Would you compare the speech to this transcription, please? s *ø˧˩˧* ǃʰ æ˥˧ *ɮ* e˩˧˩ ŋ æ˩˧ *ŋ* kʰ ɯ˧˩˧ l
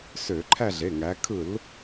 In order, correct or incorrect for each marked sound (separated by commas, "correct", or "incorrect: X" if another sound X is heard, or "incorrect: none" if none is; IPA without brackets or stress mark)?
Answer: correct, correct, incorrect: none